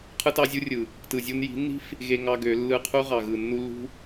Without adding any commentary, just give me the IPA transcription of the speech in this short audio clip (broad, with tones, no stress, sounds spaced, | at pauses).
qʰ ɯ˦ t ɑ˦ zʲ u˦ rʲ ɯ˨ | t ɯ˨ zʲ u˧ n j i̤˨˦ nː i̤˦ f | ɣ e˦ ŋ ɑ˦ ɡ ø˨˦ lː ɯ˧ qʰ u˦ ʁ ɑ˨ ɣ ɯ˨ nː u˧ lː ṳ˦